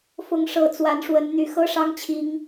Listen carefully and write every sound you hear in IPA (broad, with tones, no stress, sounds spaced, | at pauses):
f ʊ˨˦ ŋ ʂ ɤ˨˩ t͡s w a˨˦ n ʂ w ə˨˦ n n̪ y˨˩ x ɤ˦ ʂ ɑ˦ ŋ t͡ɕʰ i˨˦ ŋ